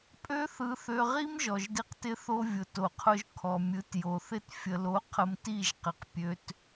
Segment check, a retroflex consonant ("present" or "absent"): absent